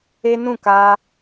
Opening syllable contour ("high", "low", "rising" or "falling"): high